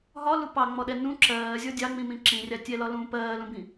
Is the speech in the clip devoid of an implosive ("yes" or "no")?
no